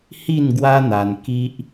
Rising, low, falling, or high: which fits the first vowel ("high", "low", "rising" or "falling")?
falling